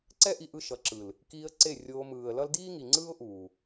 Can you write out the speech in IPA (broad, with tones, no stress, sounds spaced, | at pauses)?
ǀ ɛ˦ ʔ i˧ ʔ ɯ˧ ʃ ʌ˨ ǁ ɯ˨ l | k iː˧ ə̯ ǀ e˦˨ rʲ oː˧ m ɯː˨ ə̯ l ʌ˦ l d iː˦ ŋ i˨ ŋ͡ǀ ɯː˦ ʊ̯ ʔ uː˨